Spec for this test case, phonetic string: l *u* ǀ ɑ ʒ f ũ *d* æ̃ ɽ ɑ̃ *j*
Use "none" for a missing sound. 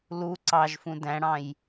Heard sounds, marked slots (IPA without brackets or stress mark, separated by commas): u, d, j